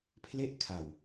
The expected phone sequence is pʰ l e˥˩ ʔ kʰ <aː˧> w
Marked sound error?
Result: yes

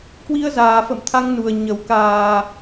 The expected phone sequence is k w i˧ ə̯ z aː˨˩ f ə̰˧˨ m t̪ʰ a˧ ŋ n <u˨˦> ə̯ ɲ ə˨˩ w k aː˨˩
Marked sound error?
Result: yes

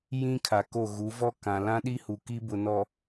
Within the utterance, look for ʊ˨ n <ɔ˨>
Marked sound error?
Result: no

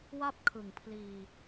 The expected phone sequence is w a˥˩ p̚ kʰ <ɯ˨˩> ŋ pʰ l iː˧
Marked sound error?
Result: yes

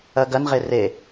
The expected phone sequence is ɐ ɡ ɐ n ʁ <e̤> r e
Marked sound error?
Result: yes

